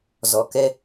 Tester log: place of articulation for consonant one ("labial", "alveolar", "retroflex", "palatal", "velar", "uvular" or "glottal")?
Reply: alveolar